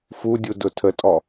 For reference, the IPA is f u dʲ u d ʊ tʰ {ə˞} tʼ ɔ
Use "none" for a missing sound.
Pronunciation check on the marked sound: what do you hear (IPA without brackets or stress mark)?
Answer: ə